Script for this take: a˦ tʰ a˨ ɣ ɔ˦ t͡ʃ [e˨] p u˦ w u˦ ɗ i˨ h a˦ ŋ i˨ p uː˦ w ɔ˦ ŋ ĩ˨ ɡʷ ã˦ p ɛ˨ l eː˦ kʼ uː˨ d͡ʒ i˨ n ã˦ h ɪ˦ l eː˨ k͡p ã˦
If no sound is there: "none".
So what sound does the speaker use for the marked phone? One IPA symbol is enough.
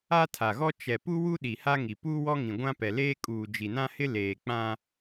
ɛ˨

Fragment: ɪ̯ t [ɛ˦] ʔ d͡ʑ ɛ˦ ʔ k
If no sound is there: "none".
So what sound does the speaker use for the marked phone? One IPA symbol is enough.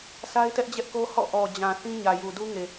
ɛ˦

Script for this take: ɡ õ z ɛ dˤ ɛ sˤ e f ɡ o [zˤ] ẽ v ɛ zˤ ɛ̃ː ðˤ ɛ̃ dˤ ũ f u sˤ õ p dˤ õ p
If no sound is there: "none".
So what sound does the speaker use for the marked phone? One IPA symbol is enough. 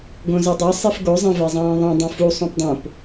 zˤ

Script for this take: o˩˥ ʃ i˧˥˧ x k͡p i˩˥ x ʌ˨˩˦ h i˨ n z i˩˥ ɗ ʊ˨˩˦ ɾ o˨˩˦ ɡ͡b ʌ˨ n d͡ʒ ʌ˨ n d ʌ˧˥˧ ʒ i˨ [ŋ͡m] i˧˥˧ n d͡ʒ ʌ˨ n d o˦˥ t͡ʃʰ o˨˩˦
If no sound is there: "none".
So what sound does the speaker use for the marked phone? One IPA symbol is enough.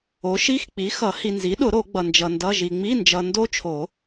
ŋ͡m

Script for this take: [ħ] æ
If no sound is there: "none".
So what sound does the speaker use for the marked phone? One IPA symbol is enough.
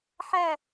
ħ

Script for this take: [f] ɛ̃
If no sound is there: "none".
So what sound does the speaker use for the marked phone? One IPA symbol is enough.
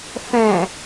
f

